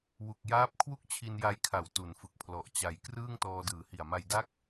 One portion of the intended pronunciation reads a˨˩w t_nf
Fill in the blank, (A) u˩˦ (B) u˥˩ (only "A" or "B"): A